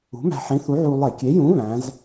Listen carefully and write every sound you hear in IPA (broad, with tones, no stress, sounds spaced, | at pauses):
ṳ˨˥ m æ̤˧ ħ ĩ˨˥ θ u˨˥ ʕ u˧ lˠ e˧˩˧ kʲ e˨˥ j ũ˨˥ β æ̃˨˥ z